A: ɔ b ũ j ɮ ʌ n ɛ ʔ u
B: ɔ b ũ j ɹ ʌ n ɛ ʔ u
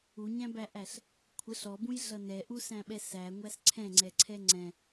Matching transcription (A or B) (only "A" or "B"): A